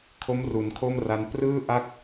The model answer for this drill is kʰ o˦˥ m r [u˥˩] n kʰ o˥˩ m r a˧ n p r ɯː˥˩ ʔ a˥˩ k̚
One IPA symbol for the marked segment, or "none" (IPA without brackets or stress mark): u˩˦